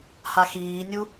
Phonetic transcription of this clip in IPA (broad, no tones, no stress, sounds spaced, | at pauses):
h a x iː nʲ u